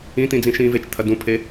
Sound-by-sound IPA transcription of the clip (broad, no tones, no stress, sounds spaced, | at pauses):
ĩ t̪ ĩ d͡z ĩ ʃ ĩː v e t͡ʃ t̪ʰ ɐ d ũ pʰ e